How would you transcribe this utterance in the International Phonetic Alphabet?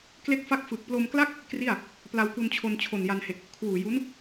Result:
k l e˦˥ k̚ f a˦˥ k̚ f ɯ˨˩ k̚ p l o˧ m k l a˥˩ k̚ | k r i˥˩ a̯ | p l a˧ w k u˧ n t͡ɕʰ o˧ n t͡ɕʰ o˨˩ n j a˧ n h e˨˩ k̚ | kʰ w uː˨˩ j u˦˥ n

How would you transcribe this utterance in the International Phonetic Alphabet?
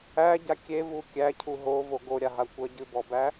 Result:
æ ɟ a kʲ e v u kʲ æ cʰ u ɦ o v o ɡ o ɾʲ a ɦ a kʷ ɜ ɟ ɨ b ɔ b æ

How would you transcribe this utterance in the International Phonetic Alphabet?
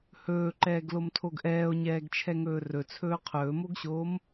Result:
h ɵː ǃ ɛː ɡ l o m tʰ o ɡ ʔ ɛː o̯ ɲ ɛː ɡ t͡ʃʰ ɛ ŋ ɵː r ɵ t͡sʰ ɵː qʰ ɵː m o ɡ ɕ oː m

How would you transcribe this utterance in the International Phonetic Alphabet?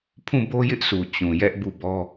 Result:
pʰ ũ˦˨ b o˦ j ɪ˦ ʔ s u˨ t͡ɕ ũ˨ j ɛ˦ ʔ b u˦˨ b ɔ˦

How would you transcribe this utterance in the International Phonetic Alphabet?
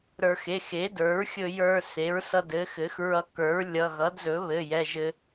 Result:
ɾ ə˞˧ x e˩˧˩ x e˩˥ d ə˞˩˥ ɹ xʲ ɵ˧ j ə˞˧ s e˩˥ ɹ s ʌ˧ d ɘ˩˥ x ɘ˩˥ x ɹ ʌ˧ k ə˞˩˥ ɹ lʲ ʌ˩˧˩ ɣ ʌ˩˥ d z ɵ˩˥ β ɘ˩˧˩ j ɛ˩˧˩ ʒ ɘ˧

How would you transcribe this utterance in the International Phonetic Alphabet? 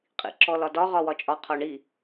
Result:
qʼ ḭ ǁ ɔ l ɒ d ɒ ʁ ɒ w ɒ t͡ʃʼ ɒ qʰ ɔ ɳ i

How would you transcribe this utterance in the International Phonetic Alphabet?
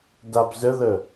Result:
d a b z ə ð ə

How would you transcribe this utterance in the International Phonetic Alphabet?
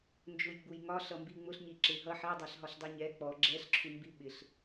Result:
n d͡ʒ ʊ j ɡ͡b u j ŋ ɒ ɬ ʌ m b i ŋ͡m ʊ ɬ ɲ i ǁ ɪ ɦ ʌ ħ ɛ dˤ ɛ ɬ ɦ ɒ ɬ dˤ i ɲ ɛ k͡p ɔ ɡ͡ǁ ɛ ɬ ǁʰ u m b i ɓ ɪ ɬ

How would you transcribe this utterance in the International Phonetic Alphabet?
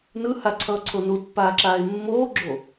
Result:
n ɯ h a ǀʰ ʌː ǀʰ o n u t pː aː ǁ aː e̯ mː oː ɡ͡ǁ o

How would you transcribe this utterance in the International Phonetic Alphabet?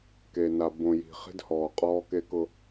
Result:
k e˨ n a˨ b õ˨ j i̤˨ χ i̤˦ d h ɔː˨ qʼ ɔː˦ k e˦ k ʊ˦

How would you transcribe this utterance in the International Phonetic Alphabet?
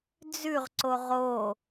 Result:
d͡z ʉ ʁ ǀ o ʁ o

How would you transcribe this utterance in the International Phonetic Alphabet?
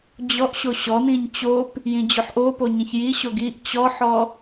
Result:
d͡ʑ ɔ ʔ ɕ o ɕ ɔ n ĩ ɲ t͡ɕ o p | j ĩ d͡ʑ o ħ ʔ o p o ɲ ĩ ç j i ɕ o ɡ i ʔ t͡ɕ ɔ ħ ɔ

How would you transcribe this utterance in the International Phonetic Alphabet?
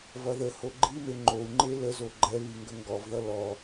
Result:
v ʌ ð ə h o ɡ͡ǃ i m e ŋ͡ǃ o u̯ ŋ͡ǃ e l ə z o ɡ͡ǃ ɛ β i ŋ ɡ ə ŋ ɡ ɔ v ð ʌ l ɔ

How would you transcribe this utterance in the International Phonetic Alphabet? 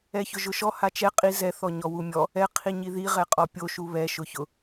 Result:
ɛ ç ʊ ʒ ʊ ʃ ɔ h a t͡ʃ ɛ qʼ i z ɛ θ ɔ ɲ ɔ w u mʲ ɔ | ɛ qʰ i ɲ i ð i ʁ ɛ qʼ ɔ pʲ o ʃ u β ɛ ʃ ʊ ç ʊ

